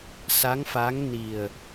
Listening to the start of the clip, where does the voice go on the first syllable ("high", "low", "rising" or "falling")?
rising